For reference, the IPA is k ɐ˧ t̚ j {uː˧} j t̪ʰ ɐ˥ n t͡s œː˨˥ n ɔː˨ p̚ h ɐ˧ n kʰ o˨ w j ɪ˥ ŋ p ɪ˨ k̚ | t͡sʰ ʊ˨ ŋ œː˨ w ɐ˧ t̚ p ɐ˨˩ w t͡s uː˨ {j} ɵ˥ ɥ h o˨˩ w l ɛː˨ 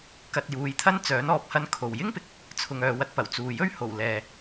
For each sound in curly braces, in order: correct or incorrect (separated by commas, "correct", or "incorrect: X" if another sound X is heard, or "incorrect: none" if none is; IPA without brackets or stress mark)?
incorrect: uː˨˧, correct